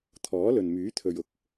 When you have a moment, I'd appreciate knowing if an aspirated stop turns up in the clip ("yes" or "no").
yes